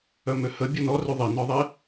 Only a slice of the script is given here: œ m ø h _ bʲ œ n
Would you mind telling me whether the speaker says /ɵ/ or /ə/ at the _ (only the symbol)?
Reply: ə